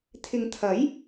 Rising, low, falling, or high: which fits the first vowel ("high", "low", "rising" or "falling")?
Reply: low